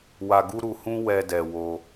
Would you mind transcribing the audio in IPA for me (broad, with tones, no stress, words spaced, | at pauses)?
wa˧ɡu˦ɾu˧hũ˦ wɛ˧dɛ˨ wo˧